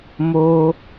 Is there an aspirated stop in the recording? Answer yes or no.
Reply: no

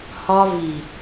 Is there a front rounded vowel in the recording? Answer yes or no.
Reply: no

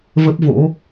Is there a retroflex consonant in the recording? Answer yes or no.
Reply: no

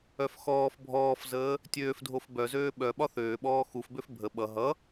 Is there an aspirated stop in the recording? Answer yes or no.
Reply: no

